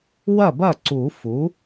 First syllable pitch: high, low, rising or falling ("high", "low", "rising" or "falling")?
falling